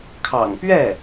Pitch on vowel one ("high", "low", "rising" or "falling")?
low